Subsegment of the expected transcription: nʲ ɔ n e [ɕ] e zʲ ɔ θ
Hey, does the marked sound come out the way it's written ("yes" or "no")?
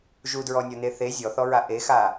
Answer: no